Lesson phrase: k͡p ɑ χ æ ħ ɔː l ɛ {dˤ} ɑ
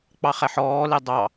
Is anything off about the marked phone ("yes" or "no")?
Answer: no